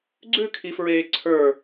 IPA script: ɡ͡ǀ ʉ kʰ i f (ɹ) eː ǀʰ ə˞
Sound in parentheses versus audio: correct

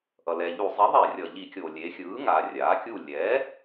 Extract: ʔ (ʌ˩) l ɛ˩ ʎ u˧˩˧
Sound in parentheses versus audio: correct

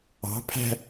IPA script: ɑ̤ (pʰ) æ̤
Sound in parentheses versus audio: correct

